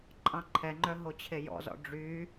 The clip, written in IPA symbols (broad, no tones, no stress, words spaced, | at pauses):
ǃʼɑ̃ǃʰɛŋ͡ǃœ ɦot͡ɕʰejɔ̰zɔ̰ ɖ͡ʐy